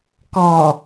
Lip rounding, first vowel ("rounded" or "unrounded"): rounded